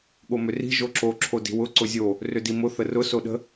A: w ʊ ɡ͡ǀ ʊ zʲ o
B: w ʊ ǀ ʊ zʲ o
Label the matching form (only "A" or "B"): B